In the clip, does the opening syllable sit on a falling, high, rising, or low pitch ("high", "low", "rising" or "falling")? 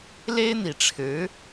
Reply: high